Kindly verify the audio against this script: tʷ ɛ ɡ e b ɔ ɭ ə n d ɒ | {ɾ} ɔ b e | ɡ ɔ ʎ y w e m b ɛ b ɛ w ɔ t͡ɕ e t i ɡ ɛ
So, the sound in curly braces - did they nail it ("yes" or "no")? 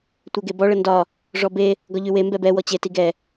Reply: no